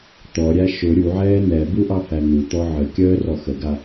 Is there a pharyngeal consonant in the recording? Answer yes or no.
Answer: yes